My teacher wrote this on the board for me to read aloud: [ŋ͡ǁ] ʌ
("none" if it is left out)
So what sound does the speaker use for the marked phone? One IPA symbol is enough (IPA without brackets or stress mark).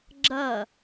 ɡ͡ǁ